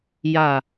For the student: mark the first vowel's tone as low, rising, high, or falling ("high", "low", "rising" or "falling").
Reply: low